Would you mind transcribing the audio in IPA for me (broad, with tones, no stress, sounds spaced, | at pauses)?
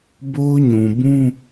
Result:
b o˦ ʊ̯ ɲ ũ˨ b ũ˦